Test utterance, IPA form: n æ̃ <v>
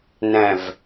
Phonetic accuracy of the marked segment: correct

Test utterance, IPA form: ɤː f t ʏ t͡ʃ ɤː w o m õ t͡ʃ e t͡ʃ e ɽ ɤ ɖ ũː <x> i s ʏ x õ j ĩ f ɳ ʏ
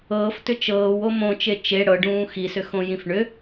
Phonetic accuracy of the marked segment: correct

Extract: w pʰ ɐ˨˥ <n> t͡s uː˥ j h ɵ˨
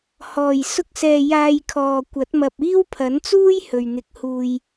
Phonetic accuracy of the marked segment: correct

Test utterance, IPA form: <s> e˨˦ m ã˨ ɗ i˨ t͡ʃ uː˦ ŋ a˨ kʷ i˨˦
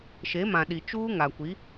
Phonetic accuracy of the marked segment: incorrect: ʃ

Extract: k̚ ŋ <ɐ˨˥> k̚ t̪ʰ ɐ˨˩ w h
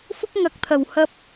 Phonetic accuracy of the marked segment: correct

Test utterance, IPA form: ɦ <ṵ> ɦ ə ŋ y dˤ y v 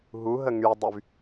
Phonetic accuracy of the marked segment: incorrect: u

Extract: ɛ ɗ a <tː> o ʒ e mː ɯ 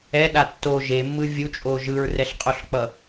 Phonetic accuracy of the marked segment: correct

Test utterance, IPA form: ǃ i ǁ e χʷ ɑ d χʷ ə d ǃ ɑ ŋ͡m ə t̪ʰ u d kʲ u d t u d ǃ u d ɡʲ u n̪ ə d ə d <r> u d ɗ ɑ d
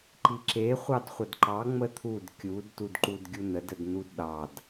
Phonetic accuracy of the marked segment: incorrect: n̪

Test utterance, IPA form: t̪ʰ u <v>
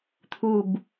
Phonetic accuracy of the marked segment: incorrect: b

